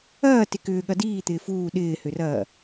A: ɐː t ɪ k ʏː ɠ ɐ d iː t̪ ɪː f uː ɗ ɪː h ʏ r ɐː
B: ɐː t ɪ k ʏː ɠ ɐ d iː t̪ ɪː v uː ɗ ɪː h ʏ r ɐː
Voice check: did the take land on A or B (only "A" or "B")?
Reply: A